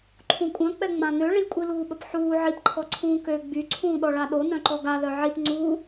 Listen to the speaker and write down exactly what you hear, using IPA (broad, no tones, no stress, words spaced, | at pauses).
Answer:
ǃʰũkʷʼœ̃k͡pɛ ŋ͡mãnø ɭikʷʼiluːɓəp ħuː ʕipǃʰɔ ǀʰũːkø ɡ͡by ǀʰũːɗɔɭaɗo nœ̃ǃɔɡalœ ʕip ŋ͡ǀuː